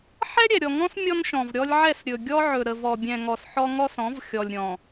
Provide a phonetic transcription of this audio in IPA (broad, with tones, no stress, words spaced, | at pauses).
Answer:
ħɛ˦ɾʲɛ˨ɾʲɔ˨ŋɔ̃˦s mʲɔ˦nʃɔ̃˨vɾʲɔ˦lʲ ʕɛ˦˨sɾʲɵ˨ɡʲɔ˦ ʕɵ˨ɾə˨vɔ˨ bʲɛ̃˨ ŋɔ˨sħɔ˦ ŋɔ˦sɔ̃˨˦v xʲɔ˨lʲɾʲɔ̃˨